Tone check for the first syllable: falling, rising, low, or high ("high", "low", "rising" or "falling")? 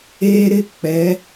high